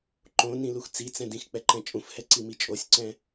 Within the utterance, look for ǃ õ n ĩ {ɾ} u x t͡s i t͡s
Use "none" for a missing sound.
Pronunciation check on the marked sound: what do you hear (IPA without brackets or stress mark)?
l